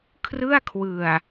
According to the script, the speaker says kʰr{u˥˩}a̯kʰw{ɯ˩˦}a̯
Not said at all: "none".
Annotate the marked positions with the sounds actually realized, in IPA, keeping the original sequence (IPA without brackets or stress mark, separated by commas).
ɯ˥˩, ɯ˨˩